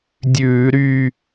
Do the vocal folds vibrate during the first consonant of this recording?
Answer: yes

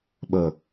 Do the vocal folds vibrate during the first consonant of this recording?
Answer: yes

